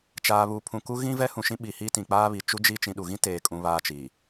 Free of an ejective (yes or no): no